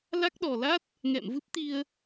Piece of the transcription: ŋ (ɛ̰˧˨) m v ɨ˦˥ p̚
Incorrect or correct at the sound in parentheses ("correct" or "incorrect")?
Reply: correct